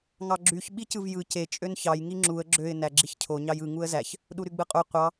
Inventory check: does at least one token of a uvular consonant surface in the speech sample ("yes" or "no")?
yes